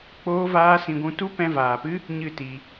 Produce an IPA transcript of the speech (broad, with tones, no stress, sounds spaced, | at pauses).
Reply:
k͡p oː˦ v aː˦ s ĩ˧ ɡʷ ũ˦ t u˦ p ɛ̃˧ v aː˨ p ɨ˦ | ɲ ɨ˦˨ t i˧